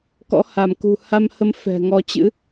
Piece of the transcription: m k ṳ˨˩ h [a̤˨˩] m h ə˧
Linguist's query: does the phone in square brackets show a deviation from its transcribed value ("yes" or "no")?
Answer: yes